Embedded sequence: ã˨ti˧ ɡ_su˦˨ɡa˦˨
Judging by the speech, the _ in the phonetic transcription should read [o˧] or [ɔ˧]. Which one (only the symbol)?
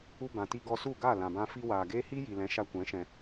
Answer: ɔ˧